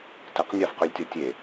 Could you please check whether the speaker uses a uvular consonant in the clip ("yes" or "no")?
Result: yes